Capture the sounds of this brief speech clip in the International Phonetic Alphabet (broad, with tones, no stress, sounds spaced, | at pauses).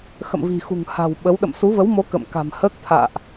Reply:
x ə̰˧˨ m v i̤˨˩ x ṳ˨˩ ŋ h a̤˨˩ w ɓ ə˨˦ w ɗ ə̰˧˨ m s u˨˦ v ə˨˦ w m o˨˦ k ə̰˧˨ m k a̤˨˩ m h əː˦˥ k̚ t̪ʰ a̰ː˧˨ ʔ